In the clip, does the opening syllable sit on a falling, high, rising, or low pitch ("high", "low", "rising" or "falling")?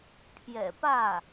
low